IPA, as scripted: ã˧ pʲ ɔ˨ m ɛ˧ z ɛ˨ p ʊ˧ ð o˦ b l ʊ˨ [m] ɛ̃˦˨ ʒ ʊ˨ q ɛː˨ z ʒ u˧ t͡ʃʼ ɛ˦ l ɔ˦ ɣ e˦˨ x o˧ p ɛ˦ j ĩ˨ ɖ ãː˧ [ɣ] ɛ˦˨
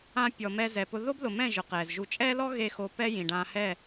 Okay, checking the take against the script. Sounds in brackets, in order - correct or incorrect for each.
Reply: correct, incorrect: h

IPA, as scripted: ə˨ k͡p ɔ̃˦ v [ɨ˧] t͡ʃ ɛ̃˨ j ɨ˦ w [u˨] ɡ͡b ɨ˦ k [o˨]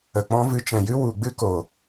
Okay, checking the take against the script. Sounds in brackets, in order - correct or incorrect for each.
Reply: correct, correct, correct

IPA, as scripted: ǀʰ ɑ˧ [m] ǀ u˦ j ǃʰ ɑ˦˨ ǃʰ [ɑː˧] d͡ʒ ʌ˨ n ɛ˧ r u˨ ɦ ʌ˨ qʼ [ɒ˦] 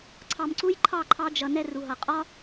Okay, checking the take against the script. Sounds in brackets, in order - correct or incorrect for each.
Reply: correct, incorrect: ɑ˧, correct

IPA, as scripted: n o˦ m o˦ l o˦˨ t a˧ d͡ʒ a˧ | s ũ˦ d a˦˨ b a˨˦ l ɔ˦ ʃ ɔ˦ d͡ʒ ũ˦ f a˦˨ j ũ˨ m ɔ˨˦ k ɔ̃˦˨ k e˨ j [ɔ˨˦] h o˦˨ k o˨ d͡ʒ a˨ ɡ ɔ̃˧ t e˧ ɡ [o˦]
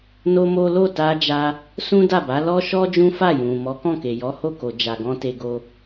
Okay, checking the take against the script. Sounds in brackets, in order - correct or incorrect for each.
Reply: correct, correct

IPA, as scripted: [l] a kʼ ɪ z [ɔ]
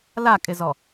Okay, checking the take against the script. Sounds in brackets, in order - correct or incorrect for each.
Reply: correct, correct

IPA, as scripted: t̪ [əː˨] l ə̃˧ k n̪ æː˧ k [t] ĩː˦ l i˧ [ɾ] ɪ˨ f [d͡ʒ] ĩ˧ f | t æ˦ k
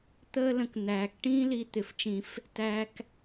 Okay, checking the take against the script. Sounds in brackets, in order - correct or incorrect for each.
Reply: incorrect: əː˦, incorrect: ʈ, incorrect: t̪, incorrect: t͡ʃ

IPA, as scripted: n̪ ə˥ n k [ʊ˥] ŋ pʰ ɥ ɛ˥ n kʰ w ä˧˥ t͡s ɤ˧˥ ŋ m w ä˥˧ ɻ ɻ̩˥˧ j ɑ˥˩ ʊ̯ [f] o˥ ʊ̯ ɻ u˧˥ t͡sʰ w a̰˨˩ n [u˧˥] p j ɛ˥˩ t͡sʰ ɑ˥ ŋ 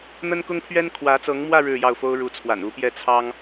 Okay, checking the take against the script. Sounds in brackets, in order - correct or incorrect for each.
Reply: correct, correct, correct

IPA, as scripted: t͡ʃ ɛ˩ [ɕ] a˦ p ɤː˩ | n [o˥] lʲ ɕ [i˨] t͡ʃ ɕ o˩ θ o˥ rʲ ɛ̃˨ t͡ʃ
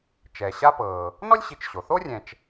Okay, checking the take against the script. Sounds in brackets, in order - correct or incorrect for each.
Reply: correct, incorrect: ɔ˥, correct

